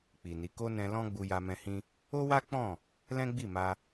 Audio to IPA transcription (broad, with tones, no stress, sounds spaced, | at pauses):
k͡p i˨ n i˨˦ k o˦ n ɛ̃˧ l ɔ̃˦ ɡ͡b u˧ j a˧ m ɛ̃˧ h ĩ˦ | o˦ w a˦ k͡p ɔ̃˦˨ | l ɛ̃˦ ɡ͡b i˦˨ m a˧